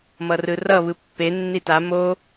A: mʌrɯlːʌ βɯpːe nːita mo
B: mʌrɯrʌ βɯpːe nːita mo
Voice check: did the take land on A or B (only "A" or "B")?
B